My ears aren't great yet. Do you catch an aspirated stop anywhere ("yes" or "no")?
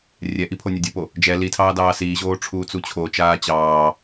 yes